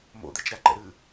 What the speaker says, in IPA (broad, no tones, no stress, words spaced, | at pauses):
mo̰d̪ɛt͡ʃɾaǃɛ̰ ɾɨ